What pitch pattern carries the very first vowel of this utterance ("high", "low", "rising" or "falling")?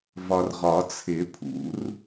low